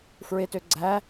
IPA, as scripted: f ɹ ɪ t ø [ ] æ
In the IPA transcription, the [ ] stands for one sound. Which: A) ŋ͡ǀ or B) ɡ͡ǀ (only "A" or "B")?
B